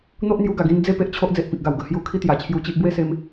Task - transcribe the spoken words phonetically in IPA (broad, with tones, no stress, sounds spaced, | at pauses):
n̪ o˦ ʔ n̪ j u˧ ɡ a˨˩ ɡ ĩ˧ n d͡z e˥˧ p e˦ ʔ t͡ɕʰ o˦ ʔ d͡z e˨ ʔ p ĩ˨ k̚ ɡ a˨˩ w ɡ ə˨˩ h j u˧ kʰ i˦ t̪ j a˨˩ t͡ɕʰ j u˧ t͡ɕ i˦ ʔ b w e˥˧ s e˧ m